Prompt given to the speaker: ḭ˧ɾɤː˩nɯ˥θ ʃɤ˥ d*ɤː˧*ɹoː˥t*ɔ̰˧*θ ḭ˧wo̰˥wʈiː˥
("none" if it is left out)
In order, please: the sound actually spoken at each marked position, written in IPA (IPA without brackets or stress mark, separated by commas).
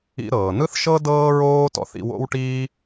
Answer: ɤː˥, ɔ̰˧